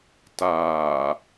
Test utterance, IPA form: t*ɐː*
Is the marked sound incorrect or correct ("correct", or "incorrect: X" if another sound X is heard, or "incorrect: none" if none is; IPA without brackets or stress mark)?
incorrect: aː